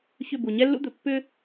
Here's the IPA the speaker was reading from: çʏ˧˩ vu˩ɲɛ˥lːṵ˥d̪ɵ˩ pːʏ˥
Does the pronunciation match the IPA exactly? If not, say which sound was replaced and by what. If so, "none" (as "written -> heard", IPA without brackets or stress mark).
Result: v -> b